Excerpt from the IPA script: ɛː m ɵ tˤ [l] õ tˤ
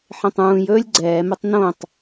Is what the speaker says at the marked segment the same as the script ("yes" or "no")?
no